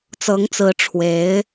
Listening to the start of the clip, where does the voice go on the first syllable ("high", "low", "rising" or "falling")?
rising